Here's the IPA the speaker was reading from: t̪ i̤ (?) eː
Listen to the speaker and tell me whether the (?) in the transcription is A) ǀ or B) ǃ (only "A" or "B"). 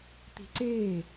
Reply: A